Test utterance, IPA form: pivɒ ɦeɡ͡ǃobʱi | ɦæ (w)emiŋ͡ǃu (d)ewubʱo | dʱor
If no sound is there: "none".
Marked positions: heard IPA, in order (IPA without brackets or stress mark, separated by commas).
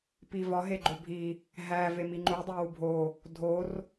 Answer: v, dˤ